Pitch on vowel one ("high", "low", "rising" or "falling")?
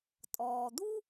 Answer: low